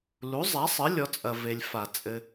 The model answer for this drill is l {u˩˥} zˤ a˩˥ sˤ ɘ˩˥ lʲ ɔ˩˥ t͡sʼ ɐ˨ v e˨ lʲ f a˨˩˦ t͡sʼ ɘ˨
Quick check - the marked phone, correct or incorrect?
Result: correct